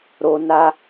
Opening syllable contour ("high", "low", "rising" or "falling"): high